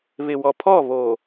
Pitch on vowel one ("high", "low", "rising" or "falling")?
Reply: low